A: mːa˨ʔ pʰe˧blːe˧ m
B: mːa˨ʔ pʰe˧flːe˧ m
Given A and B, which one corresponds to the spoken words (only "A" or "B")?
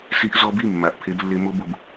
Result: A